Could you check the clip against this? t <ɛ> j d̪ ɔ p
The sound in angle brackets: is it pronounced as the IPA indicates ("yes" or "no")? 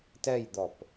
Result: yes